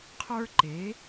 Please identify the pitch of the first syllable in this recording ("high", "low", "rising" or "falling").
high